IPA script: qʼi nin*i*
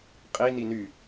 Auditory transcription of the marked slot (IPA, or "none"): y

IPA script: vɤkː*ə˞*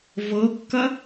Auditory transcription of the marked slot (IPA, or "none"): ɐ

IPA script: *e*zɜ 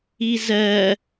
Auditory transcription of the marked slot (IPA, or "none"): i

